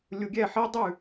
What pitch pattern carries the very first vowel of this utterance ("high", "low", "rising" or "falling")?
low